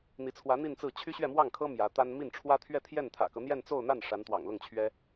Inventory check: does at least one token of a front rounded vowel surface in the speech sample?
yes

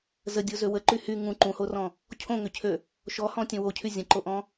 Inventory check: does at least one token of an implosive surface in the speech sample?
no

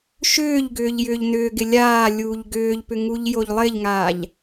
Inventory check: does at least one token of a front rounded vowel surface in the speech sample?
yes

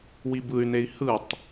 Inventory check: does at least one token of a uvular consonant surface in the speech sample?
no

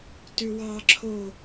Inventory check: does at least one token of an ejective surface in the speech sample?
no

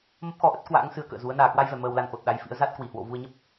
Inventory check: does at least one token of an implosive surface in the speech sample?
yes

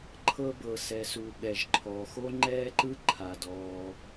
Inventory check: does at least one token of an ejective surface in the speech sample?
no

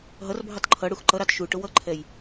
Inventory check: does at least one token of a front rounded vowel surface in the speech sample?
no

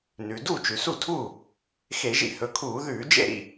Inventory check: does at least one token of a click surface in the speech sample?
no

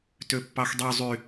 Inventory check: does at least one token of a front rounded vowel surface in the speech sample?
yes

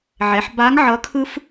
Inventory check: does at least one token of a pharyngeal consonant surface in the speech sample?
yes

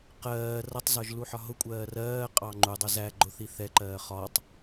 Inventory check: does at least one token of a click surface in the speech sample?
yes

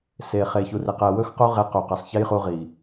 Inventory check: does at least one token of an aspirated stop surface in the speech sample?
no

